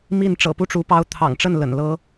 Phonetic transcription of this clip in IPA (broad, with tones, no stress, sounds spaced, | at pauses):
m i˥˩ n ʈ͡ʂ ɤ̰˨˩ p u˥˩ ʈ͡ʂ u˧˥ p ɑ˧˥ ʊ̯ t̪ʰ ɑ̰˨˩ ŋ ʈ͡ʂ ə˥˩ n l ə̰˨˩ n l ɤ˥